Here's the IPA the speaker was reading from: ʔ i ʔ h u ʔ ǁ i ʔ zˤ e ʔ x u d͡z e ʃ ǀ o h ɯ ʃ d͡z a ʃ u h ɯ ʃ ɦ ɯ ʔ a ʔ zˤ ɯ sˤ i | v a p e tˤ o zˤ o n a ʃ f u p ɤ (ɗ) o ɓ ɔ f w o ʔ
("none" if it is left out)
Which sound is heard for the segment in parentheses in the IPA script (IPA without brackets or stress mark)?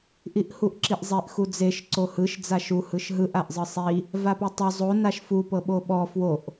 ɓ